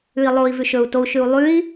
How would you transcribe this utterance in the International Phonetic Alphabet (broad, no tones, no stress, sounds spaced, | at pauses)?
ʉ i̯ lˠ o i̯ v ʉ ʃ ɵ u̯ t o u̯ ʃ ʉ u̯ lˠ ʉ i̯